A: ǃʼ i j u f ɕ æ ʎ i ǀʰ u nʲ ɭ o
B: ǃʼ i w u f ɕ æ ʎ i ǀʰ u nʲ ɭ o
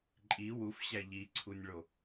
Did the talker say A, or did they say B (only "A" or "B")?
B